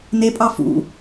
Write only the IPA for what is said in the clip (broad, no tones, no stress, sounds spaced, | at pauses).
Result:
n e pʼ ɑ f ṵ